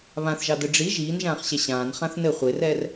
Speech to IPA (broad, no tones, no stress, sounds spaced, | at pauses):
β ã θ ʒ ɑ d ɘ ɖ͡ʐ i ʒ iː n ʒ ãː χ ɕ ɛ ɕ ãː n χ ã θ n ɘ χʷ e r ɛː r